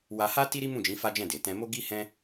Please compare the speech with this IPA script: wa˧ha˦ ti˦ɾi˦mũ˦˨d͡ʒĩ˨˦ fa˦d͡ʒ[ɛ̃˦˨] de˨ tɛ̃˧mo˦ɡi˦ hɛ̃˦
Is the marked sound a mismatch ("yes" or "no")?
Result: no